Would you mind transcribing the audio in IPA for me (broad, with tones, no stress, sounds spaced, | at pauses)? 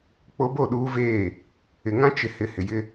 k͡p o˦ b o˦˨ ɗ uː˦ v eː˦˨ | ɪ˨ ŋ ã˦ t͡ʃ ɪ˨ h ɪ˨ h ɪ˨ j ɪ˦